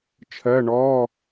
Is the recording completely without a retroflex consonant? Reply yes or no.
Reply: no